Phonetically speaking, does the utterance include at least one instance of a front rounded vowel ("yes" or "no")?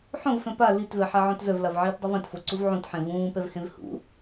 yes